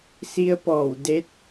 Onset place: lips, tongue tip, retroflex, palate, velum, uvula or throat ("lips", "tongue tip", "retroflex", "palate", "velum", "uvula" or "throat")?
tongue tip